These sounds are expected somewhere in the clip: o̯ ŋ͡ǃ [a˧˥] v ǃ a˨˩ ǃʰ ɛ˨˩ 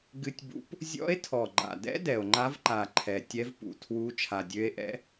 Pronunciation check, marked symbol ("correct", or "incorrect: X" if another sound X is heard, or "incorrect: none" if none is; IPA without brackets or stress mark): correct